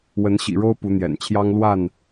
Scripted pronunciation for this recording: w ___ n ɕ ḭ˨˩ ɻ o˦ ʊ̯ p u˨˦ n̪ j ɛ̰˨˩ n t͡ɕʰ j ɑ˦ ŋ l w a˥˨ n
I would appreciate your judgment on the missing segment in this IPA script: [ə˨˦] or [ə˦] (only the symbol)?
ə˨˦